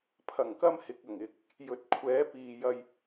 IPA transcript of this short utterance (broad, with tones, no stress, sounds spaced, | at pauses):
pʰ ɐ˨˩ ŋ k ɐ˧ m h ɪ˨ k̚ ɐ˨˩ ŋ ɪ˨ k̚ | j ɵ˨ t̚ kʷʰ ɛː˨˥ p iː˨ j ɐ˧ j